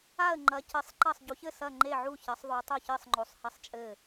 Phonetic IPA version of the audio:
a˥˨ ə̯ ŋ͡ǃ ɐ˨˦ c ɘ˨˦ sˤ ǃ ɐ˥˨ sˤ ɟ u˨˦ ç ɘ˥˨ s ɐ˥˨ ŋ͡ǃ e˥˨ ʕ u˥˨ ç ɐ˨˦ sˤ ðˤ o˨˦ tˤ o˥˨ ç ɘ˥˨ sˤ ŋ͡ǃ o˨˦ sˤ h ɐ˥˨ sˤ t͡ʃʼ ɘ˥˨

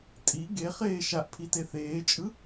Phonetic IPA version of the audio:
tʼ i ɡ e χ eː ʃ a ʔ pʰ i t e θ eː t͡ʃʼ ɯ

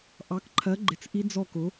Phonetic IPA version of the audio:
ʔ ɑ˨˥ k ǃʰ ɜ˨˥ ɡ͡ǃ ɪ˨˥ t͡s ʔ i˦˥ d͡z ɔ˥˩ k ʊ˨˥

